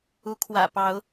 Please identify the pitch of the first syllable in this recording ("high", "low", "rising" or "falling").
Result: rising